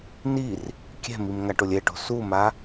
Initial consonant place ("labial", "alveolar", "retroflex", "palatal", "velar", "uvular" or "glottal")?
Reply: alveolar